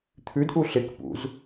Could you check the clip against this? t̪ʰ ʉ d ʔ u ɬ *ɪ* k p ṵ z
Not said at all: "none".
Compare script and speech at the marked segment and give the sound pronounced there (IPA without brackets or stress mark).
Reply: ɪ